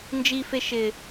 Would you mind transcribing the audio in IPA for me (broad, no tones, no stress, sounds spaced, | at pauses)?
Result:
n d͡ʒ i f e ʃ ɪ